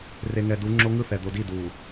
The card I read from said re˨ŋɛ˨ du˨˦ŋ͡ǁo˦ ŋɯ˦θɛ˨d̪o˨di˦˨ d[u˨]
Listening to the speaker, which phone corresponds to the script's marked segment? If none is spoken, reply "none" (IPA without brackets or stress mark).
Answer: u˨